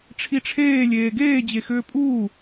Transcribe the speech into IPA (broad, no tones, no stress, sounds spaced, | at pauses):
ʈ͡ʂʰ i ʈ͡ʂʰ eː lʲ eː ɡ eː d͡ʑ e x ʏː pʼ uː